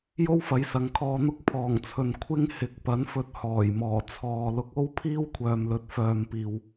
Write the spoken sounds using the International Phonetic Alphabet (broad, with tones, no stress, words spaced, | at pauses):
jo˥wfɐ˨˥j sɐ˨˥ŋkʰɔː˧n̪ʊ˥k̚ pʰɔː˨˩ŋt͡sʰɵ˨n kʷʰɪ˥ŋ hɪ˨˥k̚pɐ˨˥n fɵ˧t̚hɔː˨˩jmɔː˨˩ t͡sʰɔː˨ lʊ˨˥k̚o˥w pʰiː˥wkʷʰœː˨mlɵ˨˥t̚ fœː˨mpiː˨w